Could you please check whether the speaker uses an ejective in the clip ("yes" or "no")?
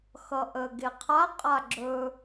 yes